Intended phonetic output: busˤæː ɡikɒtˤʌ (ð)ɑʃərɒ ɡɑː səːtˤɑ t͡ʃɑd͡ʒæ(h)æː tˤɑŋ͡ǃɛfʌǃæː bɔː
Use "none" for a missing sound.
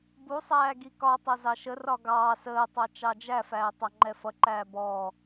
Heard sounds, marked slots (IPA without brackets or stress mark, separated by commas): z, f